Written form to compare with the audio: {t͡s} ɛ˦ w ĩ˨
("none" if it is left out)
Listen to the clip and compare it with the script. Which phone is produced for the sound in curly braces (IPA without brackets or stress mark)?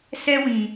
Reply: s